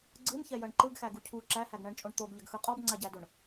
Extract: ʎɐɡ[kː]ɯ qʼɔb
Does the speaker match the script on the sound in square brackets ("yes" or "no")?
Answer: no